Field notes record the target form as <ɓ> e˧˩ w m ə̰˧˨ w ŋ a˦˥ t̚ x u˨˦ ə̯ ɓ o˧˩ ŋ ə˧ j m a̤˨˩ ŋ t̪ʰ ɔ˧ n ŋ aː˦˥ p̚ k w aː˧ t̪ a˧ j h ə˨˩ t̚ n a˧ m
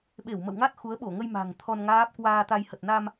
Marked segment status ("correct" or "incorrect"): correct